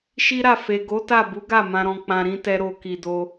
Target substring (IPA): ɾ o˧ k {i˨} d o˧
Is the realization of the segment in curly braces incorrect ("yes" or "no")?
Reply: no